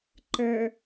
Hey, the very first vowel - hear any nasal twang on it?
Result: no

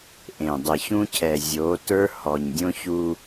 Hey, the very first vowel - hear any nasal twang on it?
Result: yes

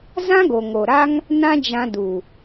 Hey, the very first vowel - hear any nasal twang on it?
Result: yes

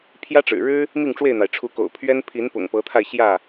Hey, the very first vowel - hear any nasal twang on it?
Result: no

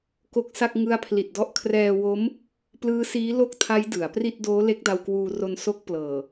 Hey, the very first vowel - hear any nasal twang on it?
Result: no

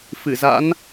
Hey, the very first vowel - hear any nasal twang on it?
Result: no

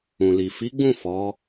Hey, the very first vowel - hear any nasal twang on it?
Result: yes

